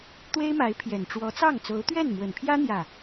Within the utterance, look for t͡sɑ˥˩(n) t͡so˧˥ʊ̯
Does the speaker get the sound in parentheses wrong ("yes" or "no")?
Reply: yes